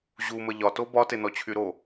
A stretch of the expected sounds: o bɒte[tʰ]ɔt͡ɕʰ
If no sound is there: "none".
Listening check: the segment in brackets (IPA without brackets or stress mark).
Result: n